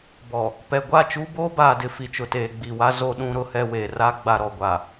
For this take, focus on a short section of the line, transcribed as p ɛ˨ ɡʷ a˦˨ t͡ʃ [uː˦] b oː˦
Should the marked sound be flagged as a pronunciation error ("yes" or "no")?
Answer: no